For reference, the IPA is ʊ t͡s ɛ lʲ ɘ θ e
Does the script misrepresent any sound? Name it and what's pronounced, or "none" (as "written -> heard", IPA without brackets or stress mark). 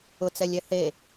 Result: ɘ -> ɛ